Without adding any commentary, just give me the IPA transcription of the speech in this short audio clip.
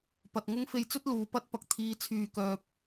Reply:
p ɐ˨ t̚ ŋ ʊ˥ ŋ f e˧ j t͡s ɵ˥ t̚ l uː˨ p ɐ˥ t̚ p ɐ˨ k̚ t̪ʰ iː˨˧ t͡sʰ yː˨ k œː˨ p̚

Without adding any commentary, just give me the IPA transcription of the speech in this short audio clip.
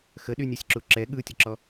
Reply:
x ə ɗ y nʲ ɛ sʲ ǁ u ǁ ɛ ɠ ɯ tʲ ə ǁ ɔ

